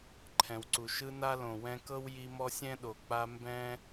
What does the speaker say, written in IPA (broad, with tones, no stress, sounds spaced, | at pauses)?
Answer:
ǃʰ ɛ̃˩ w ǀ u˩ ʃ ɯ˦ n a˥ l õ˩ w ɛ̃˦ k ɤ˥ w j i˦ m ɔ˥ sʲ ɛ̃˥ ɗ o˨ k͡p a˦ m b ɛ̃˥